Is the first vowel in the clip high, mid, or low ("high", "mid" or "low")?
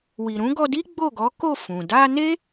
high